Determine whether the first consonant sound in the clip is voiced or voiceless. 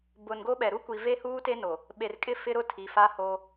voiced